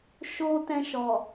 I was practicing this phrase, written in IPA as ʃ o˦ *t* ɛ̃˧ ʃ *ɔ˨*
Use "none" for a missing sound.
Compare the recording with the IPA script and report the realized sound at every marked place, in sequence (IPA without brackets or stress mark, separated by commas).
t, ɔ˨